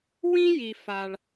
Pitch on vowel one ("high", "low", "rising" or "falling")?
high